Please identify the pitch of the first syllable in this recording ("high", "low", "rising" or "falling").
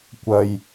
low